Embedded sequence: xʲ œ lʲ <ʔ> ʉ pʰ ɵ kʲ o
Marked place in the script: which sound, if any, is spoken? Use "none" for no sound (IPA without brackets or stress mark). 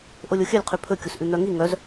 qʰ